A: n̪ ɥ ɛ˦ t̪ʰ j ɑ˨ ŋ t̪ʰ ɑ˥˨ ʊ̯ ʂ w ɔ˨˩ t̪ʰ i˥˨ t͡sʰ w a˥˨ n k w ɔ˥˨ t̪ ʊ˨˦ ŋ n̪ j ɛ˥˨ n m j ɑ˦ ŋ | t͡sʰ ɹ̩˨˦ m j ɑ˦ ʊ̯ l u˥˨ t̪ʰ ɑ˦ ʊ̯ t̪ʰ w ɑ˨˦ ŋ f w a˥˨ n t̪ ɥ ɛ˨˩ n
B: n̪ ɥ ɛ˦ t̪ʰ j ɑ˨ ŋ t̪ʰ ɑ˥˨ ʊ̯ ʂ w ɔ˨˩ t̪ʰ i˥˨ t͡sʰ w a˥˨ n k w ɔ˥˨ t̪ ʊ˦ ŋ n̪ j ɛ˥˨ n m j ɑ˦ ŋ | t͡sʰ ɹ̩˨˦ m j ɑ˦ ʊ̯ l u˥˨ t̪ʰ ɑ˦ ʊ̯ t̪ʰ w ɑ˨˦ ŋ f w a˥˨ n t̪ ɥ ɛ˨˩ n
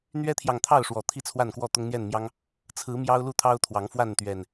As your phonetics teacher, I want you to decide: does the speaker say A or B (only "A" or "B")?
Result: B